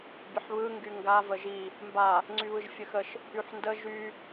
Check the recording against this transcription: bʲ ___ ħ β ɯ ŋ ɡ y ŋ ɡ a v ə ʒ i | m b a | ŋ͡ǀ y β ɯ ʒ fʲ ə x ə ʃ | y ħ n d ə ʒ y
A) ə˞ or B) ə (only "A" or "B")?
B